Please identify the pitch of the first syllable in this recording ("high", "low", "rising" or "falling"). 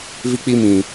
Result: high